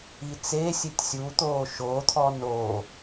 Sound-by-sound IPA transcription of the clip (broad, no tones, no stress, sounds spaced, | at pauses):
i t͡s e sʲ e tʲ sʲ u t̪ oː ʃ o t̪ʰ ɔ n o